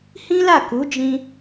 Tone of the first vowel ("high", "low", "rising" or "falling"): high